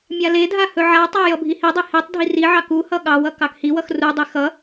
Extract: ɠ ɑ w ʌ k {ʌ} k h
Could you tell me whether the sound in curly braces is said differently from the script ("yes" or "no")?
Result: yes